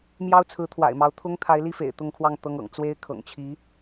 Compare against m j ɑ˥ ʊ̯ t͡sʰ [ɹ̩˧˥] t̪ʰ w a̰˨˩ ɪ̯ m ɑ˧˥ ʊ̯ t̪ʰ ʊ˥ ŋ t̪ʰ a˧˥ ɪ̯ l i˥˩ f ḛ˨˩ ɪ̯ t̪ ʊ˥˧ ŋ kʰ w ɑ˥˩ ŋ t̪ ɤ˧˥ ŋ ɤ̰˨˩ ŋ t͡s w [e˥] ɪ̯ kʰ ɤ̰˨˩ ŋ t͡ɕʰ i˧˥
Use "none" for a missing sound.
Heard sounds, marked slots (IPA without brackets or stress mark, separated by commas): ɹ̩˧˥, e˥